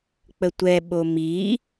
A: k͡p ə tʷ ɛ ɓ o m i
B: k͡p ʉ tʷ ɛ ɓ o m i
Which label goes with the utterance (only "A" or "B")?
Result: A